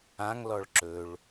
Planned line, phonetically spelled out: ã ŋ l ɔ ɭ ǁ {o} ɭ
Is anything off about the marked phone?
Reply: yes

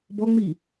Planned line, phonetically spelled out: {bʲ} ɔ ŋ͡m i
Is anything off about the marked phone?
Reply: yes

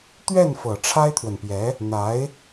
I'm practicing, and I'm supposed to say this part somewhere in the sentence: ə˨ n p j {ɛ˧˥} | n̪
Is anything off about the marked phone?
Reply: no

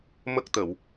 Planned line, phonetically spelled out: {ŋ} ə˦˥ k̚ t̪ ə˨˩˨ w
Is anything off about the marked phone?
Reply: yes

